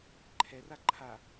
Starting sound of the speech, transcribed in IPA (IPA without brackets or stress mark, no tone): ǃʰ